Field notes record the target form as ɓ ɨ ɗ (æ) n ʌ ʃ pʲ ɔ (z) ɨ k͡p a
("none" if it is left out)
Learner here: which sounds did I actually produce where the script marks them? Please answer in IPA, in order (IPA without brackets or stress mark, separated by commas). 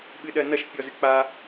ɜ, z